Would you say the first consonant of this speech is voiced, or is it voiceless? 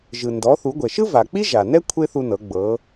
voiced